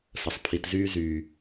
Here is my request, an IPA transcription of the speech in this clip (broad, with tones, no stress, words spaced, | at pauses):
sə˨sˤpʰi˨tzyː˧ zyː˨